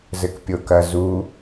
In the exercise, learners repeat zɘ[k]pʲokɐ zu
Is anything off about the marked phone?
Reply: no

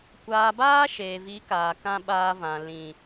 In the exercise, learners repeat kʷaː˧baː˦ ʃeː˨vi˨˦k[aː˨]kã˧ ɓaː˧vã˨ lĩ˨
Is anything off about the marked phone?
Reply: no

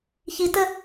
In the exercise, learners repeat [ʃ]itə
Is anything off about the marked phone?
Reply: yes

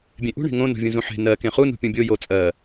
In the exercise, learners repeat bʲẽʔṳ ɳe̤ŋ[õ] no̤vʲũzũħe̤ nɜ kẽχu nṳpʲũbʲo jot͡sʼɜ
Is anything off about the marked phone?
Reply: no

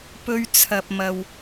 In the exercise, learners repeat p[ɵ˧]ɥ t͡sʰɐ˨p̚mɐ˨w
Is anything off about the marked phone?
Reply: no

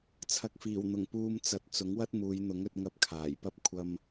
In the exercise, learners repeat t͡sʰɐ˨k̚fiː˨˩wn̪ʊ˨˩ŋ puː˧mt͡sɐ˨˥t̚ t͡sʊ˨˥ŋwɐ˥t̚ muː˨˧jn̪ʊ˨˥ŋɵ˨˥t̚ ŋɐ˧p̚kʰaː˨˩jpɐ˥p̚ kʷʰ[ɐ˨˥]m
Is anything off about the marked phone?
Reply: yes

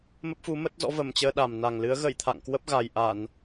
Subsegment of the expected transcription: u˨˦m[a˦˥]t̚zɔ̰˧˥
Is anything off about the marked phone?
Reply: yes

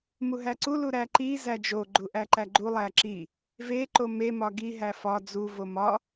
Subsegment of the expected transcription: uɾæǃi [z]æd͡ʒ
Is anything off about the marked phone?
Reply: no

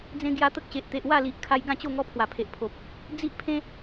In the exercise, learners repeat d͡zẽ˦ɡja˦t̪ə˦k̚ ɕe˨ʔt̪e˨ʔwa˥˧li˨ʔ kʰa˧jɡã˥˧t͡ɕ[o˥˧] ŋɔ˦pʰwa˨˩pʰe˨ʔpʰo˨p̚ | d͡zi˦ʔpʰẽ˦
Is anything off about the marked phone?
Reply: no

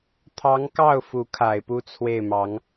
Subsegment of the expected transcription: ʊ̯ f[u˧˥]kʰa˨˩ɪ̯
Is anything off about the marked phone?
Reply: no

